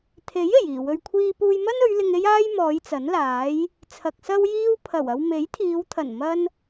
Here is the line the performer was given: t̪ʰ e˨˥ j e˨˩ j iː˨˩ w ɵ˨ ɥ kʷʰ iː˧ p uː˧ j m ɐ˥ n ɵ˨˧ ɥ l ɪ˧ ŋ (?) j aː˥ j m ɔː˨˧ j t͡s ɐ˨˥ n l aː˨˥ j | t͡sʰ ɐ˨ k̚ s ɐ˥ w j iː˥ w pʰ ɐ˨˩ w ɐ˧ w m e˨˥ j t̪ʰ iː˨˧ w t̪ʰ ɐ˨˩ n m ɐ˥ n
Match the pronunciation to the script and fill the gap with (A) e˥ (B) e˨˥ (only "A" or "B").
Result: A